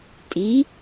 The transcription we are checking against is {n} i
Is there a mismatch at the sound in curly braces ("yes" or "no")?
yes